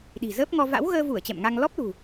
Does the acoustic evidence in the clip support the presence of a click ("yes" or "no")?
no